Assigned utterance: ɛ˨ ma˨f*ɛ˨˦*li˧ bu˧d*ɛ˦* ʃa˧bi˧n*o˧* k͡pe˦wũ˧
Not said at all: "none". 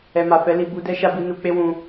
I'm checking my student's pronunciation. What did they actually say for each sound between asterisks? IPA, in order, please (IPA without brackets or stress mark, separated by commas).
ɛ˨˦, ɛ˦, u˧